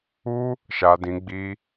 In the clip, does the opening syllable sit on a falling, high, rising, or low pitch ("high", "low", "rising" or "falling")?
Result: high